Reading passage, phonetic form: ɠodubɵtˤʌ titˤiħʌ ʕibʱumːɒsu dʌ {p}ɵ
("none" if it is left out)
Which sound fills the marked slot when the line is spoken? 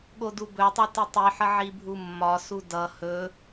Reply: h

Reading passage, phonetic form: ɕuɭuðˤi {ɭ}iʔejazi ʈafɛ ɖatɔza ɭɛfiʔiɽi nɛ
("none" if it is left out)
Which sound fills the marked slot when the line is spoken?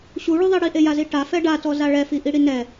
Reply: ɽ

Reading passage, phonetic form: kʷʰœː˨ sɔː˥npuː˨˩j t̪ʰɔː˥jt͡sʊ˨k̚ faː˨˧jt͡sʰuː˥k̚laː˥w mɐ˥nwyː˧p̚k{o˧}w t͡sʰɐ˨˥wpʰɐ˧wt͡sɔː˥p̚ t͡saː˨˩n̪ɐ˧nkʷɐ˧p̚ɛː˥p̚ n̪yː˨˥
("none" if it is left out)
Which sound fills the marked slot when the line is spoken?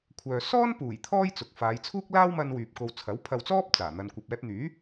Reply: o˧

